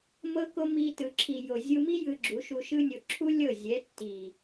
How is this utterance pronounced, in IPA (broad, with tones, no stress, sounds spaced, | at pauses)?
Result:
m ɤ˧ k o˧ m i˧ t ɯ˨ ǁʰ i˨ j o˨ zʲ u˧ m i˦ j ɯ˧ ɡ͡ǁ u˨˦ ʃ u˧ ʃ ɯ˦ nʲ o˧ ǁʰ u˦ lʲ ɤ˦˨ zʲ ɛ˨˦ tː i˨